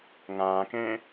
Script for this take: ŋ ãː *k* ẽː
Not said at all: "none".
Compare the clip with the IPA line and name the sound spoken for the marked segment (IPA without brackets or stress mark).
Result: k